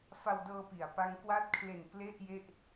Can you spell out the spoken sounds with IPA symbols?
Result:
f a˧ w d ɤː˧ p i˩˦ a̯ p a˦˥ ŋ k w a˥˩ t̚ kʰ l e˨˩ n p l e˥˩ ʔ j e˥˩ ʔ

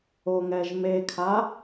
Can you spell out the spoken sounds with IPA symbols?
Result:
o ŋ ɛ ʒ m e kʰ a

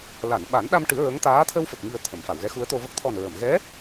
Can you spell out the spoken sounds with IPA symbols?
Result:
l a˨˩˨ n ɓ a˨˩˦ n ɗ a˧ m ʈ ɨ˨˩˦ ɹ ə˧˥ ŋ t̪ aː˧˥ t̪ʰ ə˧ w f ə˨˩ k̚ ŋ i˨˩ ə̯ t̪ʰ ə˨˩˨ m f a˨˩˨ w ɣ ɛ˧˥ x u˧˥ ə̯ t̪ o˧ v ə˦˥ k̚ t̪ʰ ɔ˨˩ n ɹ ə˨˩˨ m ɣ ɛ˧˥

